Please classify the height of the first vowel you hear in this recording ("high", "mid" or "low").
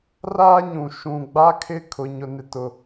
low